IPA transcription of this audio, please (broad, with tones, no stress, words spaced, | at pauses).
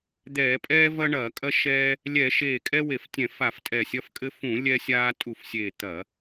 d̪ɛː˧˩˧pʼɛː˦vɐ˦ ɳɐː˧˩˧kʼɐ˦ ʃɛː˦ | lʲɛ˧˩˧ ʃeː˧˩kʼɛ˦we˧˩˧f tʲɛ̃˧˩˧fa˧˩˧f tʼɛ˧˩sʲɐ˦fkʼɘ˦ fũ˧˩˧ lʲɛ˦sʲaː˦ tʼu˧˩fsʲeː˧˩ t̪ɐ˧˩˧